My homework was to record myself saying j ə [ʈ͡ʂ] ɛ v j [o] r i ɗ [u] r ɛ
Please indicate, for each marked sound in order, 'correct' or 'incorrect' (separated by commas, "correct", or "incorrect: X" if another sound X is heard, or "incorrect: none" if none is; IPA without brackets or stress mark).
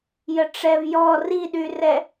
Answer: correct, incorrect: ɔ, incorrect: y